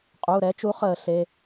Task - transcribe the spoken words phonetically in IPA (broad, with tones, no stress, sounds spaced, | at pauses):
qʼ u˩˧˩ ɾ ɛ˨˥ t͡ʃ u˨˥ χ əː˧˩˧ ɬ e˩˧˩